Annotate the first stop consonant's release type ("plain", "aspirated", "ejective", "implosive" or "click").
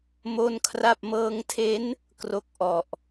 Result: aspirated